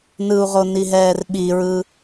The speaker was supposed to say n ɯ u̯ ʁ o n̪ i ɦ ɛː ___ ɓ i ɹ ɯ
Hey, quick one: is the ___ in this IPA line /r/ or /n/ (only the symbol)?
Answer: r